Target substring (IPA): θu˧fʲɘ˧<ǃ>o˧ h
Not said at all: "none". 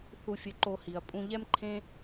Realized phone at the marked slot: ǃ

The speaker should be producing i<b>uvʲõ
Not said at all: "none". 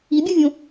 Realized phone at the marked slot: bʲ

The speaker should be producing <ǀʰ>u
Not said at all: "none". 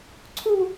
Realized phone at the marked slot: ǀʰ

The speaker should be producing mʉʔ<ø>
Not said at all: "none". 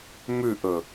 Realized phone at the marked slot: ɵ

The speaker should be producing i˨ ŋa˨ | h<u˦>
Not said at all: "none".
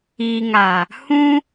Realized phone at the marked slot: ũ˦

